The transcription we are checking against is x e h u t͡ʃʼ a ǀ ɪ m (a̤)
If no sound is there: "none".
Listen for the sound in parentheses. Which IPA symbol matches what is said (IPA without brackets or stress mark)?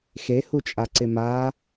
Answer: a